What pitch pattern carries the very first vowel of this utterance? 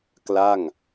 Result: falling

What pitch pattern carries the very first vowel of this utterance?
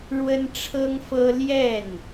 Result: high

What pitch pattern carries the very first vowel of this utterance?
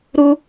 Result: high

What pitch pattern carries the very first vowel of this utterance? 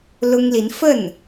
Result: high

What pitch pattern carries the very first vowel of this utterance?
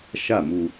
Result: falling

